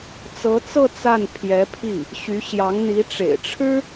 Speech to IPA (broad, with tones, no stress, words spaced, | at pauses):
t͡sɤ˧˥t͡sɤ˥˧ t͡sa˥˩npʰjɛ˧˥ pʰi˥˩ | ɕy˧˥ɕjɑ˧˥ŋn̪i˧˥ ʈ͡ʂḛ˨˩ɪ̯ʈ͡ʂʰɻ̩˥